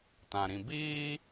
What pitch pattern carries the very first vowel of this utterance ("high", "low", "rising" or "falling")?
low